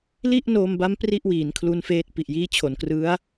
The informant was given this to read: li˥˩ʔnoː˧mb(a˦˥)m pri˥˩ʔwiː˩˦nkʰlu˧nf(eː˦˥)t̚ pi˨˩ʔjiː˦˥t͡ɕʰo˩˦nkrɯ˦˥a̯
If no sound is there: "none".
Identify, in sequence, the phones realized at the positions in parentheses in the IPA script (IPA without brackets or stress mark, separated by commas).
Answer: a˦˥, eː˦˥